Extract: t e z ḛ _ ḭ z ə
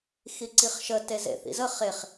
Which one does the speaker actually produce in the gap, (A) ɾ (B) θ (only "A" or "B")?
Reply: B